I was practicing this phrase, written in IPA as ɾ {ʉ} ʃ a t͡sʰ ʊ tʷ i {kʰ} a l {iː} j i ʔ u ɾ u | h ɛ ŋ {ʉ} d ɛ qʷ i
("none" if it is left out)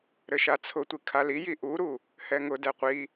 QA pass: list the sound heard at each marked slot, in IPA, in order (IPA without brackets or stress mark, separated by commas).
ɘ, kʰ, i, ʊ